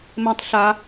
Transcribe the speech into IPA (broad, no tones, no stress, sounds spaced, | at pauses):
m ɛ̃ tˤ ɬ a